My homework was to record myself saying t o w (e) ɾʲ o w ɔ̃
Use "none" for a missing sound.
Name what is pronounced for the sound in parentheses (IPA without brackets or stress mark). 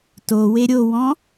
e